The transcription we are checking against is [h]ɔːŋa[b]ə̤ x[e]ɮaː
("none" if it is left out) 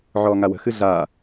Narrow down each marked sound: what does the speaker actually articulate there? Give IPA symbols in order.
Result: ʕ, w, ɨ

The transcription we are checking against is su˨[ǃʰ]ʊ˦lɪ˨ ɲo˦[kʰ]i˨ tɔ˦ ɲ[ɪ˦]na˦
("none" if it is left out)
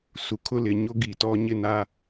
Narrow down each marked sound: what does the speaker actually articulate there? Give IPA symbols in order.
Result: kʰ, ɡ, ɪ˦

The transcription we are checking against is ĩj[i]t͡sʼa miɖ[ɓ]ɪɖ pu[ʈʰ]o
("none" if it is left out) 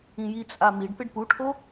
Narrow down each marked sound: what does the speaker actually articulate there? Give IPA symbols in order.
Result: i, p, ʈʰ

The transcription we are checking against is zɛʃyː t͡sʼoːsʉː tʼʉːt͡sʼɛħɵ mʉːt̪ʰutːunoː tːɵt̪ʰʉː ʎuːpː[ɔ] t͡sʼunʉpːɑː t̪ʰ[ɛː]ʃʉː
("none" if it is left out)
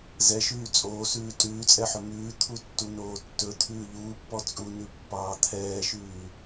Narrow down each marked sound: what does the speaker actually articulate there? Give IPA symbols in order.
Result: ɔ, ɛː

